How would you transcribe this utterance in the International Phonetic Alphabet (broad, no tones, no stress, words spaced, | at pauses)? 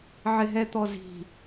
ʕɪɦɛt̪ɔzi̤